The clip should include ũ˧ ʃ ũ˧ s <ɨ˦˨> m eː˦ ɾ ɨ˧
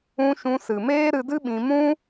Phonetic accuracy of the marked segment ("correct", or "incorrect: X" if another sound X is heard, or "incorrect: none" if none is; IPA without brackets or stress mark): incorrect: ɨ˨